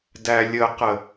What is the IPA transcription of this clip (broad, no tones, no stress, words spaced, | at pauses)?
dælʲəqə